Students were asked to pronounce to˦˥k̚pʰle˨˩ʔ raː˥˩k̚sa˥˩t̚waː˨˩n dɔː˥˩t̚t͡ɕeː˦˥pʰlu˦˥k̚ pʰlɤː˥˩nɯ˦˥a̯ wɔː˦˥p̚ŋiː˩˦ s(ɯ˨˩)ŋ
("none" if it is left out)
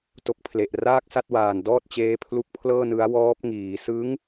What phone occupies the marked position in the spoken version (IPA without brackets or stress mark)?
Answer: ɯ˦˥